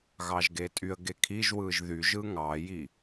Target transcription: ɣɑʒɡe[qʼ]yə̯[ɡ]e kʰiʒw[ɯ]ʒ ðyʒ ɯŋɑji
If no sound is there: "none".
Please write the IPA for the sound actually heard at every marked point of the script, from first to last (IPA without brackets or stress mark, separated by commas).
tʼ, ɡ, ɯ